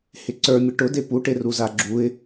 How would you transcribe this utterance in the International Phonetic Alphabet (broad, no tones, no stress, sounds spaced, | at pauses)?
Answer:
h ɪ ǀ ə˞ mʲ ə ʈ ʊ d e p u ʈ e r u z a ɡ͡ǁ u ɪ̯